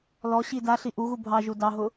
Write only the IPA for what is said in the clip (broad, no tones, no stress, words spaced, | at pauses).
lɔ ɕidaɬi ʔuɣu bʱɑʒu dɑɦʊ